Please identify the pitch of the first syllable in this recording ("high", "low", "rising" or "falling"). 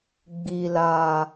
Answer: low